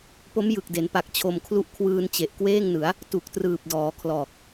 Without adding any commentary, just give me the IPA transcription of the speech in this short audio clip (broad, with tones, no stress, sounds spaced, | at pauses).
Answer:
p o˦˥ m j ɯ˨˩ k̚ d e˩˦ n p a˨˩ k̚ t͡ɕʰ o˧ m kʰ l u˥˩ ʔ kʰ w ɯː˧ n t͡ɕ e˨˩ ʔ k w eː˥˩ ŋ n ɯ˩˦ a̯ | t u˨˩ k̚ t r ɯː˨˩ p̚ d ɔː˩˦ kʰ l ɔː˨˩ k̚